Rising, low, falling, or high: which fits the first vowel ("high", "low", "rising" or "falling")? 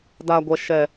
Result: low